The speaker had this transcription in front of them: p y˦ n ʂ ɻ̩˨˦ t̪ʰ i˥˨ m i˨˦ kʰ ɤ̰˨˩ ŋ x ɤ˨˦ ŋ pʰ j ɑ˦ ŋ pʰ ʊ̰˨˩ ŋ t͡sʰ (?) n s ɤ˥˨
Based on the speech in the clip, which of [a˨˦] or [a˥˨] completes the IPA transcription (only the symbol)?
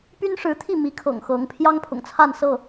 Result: a˥˨